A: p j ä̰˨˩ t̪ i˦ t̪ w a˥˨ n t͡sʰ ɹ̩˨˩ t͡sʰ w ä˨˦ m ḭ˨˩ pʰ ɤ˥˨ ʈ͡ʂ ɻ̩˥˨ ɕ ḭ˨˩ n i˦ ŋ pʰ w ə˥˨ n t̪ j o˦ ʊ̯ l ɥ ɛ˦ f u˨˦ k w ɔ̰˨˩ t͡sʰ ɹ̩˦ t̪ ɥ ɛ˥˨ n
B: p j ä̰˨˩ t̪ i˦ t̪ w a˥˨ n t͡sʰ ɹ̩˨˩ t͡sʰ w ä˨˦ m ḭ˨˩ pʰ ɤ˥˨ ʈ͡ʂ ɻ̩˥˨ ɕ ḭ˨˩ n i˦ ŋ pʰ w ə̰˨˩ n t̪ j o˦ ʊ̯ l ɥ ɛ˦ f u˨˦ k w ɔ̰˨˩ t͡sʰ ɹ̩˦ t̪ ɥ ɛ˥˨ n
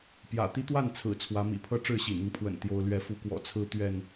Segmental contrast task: B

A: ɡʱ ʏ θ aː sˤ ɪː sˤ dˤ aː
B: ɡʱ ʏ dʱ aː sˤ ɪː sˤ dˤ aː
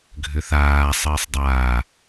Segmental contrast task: A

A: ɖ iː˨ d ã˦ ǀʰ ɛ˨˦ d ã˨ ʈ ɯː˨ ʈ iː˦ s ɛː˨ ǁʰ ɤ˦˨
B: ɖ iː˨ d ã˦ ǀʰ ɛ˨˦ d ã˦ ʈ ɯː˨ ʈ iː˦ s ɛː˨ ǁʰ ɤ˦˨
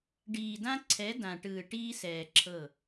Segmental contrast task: A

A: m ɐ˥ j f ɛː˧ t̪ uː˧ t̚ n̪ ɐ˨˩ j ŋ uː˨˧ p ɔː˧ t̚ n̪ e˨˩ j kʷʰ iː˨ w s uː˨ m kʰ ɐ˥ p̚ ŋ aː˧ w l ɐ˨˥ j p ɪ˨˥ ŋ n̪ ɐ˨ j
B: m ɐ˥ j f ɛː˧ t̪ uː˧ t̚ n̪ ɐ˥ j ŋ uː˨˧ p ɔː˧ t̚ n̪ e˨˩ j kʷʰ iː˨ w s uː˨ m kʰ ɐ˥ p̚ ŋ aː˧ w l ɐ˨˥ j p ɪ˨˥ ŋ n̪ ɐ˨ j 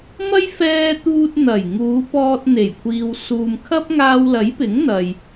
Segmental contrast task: A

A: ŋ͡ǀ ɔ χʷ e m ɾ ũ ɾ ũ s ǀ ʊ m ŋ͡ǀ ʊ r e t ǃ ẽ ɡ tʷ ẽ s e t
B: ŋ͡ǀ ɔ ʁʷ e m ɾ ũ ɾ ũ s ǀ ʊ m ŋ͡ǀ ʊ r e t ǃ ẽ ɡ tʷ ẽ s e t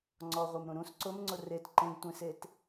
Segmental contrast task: B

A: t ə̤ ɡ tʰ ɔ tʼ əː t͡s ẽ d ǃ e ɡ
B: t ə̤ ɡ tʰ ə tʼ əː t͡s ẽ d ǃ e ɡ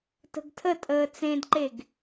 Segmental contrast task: B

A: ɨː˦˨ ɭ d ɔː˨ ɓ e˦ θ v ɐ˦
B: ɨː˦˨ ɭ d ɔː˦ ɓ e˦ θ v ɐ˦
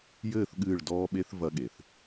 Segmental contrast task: B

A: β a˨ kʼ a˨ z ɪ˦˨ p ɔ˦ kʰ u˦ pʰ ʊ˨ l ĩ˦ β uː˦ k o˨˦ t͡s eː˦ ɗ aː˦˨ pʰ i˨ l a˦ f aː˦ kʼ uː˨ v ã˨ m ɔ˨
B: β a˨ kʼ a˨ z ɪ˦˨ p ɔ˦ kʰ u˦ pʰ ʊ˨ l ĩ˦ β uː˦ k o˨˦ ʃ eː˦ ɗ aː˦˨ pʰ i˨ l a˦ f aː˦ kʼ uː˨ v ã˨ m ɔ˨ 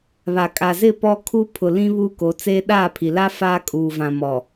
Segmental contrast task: A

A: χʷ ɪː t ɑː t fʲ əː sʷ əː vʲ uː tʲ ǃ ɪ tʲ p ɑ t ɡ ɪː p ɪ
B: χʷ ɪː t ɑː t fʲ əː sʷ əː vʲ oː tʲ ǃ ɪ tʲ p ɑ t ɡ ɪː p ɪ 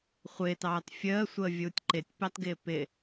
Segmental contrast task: A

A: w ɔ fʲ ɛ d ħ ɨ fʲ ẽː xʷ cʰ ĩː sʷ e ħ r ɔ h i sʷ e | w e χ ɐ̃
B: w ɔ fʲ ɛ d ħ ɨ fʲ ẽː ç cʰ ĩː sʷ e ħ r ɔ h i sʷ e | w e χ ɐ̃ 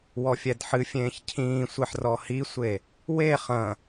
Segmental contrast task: B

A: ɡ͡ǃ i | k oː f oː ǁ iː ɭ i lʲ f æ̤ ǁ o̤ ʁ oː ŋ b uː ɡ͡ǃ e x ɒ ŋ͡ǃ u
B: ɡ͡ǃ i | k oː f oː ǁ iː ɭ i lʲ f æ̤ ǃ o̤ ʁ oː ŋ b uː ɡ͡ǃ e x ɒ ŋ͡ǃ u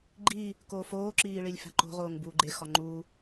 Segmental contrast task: B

